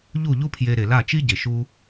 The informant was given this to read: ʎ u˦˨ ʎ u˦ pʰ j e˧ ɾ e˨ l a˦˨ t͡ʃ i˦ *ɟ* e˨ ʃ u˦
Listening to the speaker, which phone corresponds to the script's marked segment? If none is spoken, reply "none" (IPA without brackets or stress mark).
ɟ